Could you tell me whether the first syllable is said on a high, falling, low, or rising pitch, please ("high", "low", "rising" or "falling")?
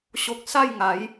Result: low